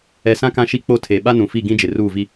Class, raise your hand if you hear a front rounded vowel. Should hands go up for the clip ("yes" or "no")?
no